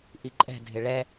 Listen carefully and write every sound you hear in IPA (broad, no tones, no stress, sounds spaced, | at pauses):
ʔ i ǃʼ ɛ̤ dʱ ɪ ɭ ɛ